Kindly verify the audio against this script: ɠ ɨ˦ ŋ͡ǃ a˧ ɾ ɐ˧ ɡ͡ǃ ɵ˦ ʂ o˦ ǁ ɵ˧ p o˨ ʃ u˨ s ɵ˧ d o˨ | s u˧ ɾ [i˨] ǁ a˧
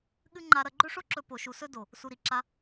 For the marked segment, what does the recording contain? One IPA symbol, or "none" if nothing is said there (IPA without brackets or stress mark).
i˨